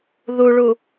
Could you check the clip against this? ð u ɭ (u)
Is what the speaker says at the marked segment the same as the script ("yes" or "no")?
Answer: yes